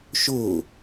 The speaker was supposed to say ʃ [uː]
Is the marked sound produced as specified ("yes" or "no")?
no